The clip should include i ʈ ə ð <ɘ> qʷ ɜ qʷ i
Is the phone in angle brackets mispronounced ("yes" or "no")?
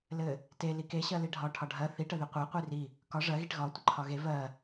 yes